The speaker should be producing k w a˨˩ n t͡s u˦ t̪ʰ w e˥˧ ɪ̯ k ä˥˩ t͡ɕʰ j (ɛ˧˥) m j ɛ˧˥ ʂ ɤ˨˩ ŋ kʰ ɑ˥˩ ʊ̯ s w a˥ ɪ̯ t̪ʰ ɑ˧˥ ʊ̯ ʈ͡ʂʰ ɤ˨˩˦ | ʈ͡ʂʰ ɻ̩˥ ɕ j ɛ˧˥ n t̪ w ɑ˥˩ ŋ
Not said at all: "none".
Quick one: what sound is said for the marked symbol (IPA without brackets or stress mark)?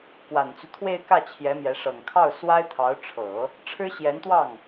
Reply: ɛ˧˥